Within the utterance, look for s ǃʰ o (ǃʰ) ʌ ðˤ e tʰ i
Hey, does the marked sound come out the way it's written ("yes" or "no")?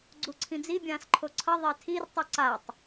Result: no